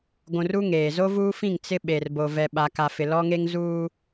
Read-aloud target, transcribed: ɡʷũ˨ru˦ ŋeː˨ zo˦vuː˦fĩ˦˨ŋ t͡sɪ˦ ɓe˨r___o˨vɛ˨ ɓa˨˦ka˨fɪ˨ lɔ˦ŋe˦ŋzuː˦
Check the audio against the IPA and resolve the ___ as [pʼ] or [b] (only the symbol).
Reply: b